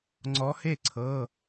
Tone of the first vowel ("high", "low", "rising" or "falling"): rising